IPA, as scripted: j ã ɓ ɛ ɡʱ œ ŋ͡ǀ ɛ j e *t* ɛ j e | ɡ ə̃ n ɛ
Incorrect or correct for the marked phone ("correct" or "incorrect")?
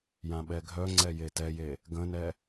correct